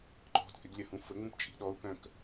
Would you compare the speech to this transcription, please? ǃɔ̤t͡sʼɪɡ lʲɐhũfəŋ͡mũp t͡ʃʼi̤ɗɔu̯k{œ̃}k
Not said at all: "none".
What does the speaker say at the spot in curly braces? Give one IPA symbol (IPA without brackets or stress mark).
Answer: œ̃